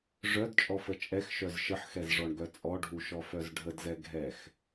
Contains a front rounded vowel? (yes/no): yes